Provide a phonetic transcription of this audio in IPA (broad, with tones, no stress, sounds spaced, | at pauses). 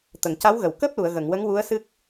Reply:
t̪ ə˨˩˨ ŋ c a˧˥ w ɣ ə˨˩˨ w k əː˦˥ p̚ l u˨˩˨ ə̯ ɣ ə˨˩˨ ŋ w ə˧˥ ŋ w u˧˥ ə̯ s ɨ˦˥ k̚